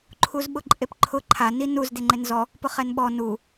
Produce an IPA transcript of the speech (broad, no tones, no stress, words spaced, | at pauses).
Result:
ǃʰuzɓʊǃʼepǃʰʊ ǃʰa ninuz deŋ͡ǃenzɔ | pʊχɛnɓɔ nu